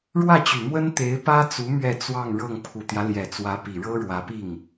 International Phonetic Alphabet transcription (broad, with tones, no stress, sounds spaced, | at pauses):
ɻ w ä˥˩ t͡ɕ y˨˩ m w ə˥ n t̪ e˧˥ ɪ̯ p ä˥ t͡s u˧˥ m ɥ ɛ˥˧ t͡s w ɑ˥˧ ŋ ɻ ɤ˥˩ ŋ pʰ u˨˩ t̪ j ä˦ l j ɛ˨˩ t͡s w ä˧˥ p i˨˩ ɻ ɤ˥ ɻ w ä˧˥ p i˥˩ ŋ